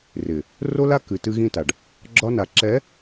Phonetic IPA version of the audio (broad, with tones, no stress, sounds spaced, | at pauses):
r ɪ˨ | r o˦ l a˦ k ɨ˨ t ɨ˦ ɣ ĩ˦ t a˨ ɖ | ɡ͡ǁ ɒ˦ n a˨ ǁ ɛ˨˦